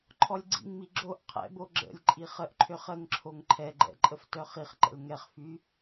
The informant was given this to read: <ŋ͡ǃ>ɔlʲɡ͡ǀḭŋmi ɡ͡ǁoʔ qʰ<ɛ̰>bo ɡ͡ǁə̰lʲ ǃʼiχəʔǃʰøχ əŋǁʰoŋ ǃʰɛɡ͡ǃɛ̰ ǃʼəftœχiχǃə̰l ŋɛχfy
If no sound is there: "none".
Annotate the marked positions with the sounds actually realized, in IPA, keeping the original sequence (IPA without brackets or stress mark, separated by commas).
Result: ǃʰ, ɛ̰